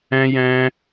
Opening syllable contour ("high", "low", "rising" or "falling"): high